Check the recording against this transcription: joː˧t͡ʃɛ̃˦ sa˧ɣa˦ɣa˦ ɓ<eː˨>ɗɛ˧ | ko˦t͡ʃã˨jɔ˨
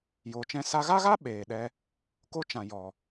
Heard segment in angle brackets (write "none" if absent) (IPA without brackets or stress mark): eː˨